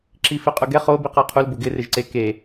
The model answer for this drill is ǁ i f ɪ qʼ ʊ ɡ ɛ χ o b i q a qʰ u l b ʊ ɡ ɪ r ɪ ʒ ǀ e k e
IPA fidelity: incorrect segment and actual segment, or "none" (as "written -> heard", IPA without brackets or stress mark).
none